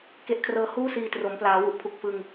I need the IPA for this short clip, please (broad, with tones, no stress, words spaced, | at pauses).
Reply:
ke˦˥ʔkʰrɤː˦˥ huː˥˩siː˧ tro˩˦mplaː˩˦ wu˨˩ʔpʰu˨˩k̚fɯ˧ŋ